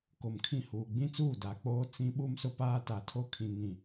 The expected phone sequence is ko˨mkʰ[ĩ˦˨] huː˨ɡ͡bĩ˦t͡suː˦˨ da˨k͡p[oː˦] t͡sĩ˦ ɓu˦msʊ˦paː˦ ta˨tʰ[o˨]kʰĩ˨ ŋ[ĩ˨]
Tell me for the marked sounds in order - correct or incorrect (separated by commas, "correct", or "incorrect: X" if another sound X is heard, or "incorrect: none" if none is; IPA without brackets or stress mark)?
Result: correct, correct, incorrect: o˦, correct